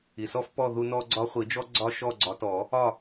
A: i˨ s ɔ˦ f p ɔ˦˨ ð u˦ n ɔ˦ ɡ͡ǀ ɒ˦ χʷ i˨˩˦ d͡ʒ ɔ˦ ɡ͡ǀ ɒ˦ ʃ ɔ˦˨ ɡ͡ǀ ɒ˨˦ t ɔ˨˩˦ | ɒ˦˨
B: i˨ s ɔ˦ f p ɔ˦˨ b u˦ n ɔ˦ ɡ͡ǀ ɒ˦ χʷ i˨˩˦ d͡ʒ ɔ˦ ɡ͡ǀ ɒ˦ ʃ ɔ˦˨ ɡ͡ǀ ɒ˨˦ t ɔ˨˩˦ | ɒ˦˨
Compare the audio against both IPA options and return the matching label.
A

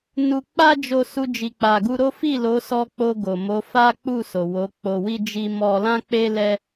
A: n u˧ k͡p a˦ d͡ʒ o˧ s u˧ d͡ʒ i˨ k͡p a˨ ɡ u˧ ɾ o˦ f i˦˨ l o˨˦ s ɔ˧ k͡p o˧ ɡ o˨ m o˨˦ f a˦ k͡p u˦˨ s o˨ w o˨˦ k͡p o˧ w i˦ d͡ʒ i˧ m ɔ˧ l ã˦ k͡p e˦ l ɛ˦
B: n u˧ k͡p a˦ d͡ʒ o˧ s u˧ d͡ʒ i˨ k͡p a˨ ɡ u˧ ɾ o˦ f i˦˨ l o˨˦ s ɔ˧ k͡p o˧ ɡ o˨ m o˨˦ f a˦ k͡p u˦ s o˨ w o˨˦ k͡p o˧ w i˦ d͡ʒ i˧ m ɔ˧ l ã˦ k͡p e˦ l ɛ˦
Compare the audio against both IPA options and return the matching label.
A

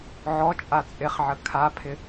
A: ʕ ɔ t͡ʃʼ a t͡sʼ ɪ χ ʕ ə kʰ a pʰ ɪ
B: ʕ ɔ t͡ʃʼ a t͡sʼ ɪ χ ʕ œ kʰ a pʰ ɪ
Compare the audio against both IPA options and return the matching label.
A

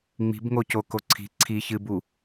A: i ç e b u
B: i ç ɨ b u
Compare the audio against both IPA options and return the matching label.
B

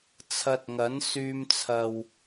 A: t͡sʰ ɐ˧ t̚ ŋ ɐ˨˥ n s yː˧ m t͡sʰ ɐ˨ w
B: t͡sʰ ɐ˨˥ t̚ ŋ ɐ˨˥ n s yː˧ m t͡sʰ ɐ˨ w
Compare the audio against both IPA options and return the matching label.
A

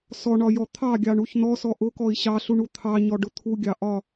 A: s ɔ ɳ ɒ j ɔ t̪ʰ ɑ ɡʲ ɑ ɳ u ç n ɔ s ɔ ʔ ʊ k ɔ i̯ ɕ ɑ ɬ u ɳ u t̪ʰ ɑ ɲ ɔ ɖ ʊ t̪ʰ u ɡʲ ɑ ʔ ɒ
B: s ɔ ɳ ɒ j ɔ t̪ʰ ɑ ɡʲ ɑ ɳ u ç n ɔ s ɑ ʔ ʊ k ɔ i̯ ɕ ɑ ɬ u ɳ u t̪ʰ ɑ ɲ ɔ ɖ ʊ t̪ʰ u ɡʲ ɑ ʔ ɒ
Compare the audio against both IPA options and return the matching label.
A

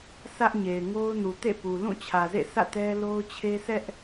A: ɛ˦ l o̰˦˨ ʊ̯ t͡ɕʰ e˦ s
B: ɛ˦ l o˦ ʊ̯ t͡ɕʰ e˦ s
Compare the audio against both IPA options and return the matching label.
B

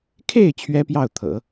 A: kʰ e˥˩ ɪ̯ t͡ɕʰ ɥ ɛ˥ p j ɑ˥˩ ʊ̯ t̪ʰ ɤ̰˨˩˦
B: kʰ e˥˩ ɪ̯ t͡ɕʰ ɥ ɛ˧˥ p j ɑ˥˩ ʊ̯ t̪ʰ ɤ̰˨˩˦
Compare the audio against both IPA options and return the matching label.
A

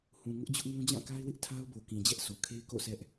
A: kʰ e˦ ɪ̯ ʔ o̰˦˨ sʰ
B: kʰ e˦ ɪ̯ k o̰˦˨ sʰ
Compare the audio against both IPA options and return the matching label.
B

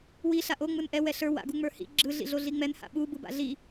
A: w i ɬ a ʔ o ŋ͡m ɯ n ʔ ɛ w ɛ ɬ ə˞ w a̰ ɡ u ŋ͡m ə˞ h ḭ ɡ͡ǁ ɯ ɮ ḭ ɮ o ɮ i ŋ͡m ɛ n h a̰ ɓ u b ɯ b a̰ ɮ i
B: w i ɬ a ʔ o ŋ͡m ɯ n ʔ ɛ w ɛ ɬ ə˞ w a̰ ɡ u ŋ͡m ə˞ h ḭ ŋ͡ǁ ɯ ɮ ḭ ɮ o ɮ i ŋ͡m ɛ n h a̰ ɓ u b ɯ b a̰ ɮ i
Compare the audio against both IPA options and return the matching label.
A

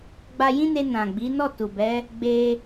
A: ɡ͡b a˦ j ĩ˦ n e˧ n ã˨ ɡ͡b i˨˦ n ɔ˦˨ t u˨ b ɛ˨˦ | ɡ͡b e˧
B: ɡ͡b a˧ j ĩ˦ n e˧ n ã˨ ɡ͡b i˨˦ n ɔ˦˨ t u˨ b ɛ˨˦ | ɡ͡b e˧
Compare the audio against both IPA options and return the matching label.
B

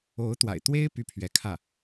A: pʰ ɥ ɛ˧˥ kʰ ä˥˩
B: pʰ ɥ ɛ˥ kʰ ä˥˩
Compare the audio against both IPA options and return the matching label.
A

